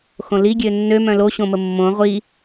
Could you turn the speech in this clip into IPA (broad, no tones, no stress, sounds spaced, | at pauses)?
x õ l i ɡʲ ø nː ø m œ̃ l o ɕ õ m ə mː õ ʁʷ i